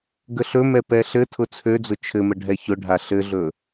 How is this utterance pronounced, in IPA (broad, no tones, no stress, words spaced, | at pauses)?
ɡəɬɵmɛ pɛɬɘtʰʊ t͡sʰød͡zʊ t͡ʃʰɘmə ɖʱɛçʊɖʱa ɬɘɮɵ